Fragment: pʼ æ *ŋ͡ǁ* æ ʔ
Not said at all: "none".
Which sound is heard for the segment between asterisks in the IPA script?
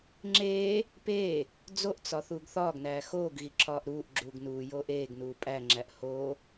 ŋ͡ǁ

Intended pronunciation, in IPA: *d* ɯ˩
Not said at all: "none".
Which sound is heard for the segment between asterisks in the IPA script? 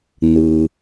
n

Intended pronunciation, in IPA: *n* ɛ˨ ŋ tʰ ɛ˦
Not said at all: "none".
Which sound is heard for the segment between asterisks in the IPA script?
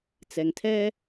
t͡s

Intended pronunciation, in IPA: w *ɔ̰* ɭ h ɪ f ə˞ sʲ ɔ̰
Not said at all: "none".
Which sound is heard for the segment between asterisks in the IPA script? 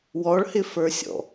ɔ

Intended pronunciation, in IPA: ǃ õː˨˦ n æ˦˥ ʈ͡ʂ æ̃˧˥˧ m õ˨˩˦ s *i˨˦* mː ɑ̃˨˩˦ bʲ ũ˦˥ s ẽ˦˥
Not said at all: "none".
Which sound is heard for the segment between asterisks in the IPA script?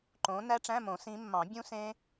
ĩ˨˦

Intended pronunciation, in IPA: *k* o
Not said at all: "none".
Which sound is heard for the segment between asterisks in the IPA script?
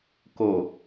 k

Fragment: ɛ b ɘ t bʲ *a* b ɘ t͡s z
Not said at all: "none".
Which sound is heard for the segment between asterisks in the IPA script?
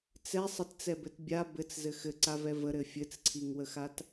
a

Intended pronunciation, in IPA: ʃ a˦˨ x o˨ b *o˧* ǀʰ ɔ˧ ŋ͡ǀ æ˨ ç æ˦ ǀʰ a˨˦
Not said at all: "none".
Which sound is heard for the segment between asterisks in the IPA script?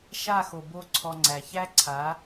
o˦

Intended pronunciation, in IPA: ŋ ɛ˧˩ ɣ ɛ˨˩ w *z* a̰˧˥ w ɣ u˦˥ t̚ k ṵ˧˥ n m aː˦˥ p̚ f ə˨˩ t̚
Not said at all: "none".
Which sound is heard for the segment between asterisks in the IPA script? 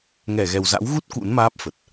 z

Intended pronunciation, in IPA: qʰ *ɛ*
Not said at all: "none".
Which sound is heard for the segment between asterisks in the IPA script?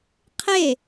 e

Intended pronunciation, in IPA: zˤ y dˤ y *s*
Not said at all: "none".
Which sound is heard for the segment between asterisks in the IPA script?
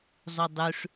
ʂ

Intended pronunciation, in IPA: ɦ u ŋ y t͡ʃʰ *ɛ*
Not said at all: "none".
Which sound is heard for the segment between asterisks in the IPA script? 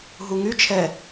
ɛ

